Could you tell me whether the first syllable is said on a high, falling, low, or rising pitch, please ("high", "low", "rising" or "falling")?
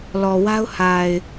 low